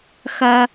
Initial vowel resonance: oral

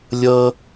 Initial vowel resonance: oral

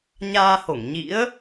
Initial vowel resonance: oral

